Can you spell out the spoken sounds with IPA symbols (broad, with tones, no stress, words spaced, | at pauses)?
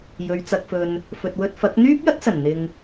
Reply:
jɵ˨˧ɥt͡sɐ˧k̚fɵ˧n | fɵ˨t̚wɵ˧t̚fɐ˨˥k̚ n̪yː˥p̚jɐ˥t̚sɐ˨˩n n̪ɪ˧ŋ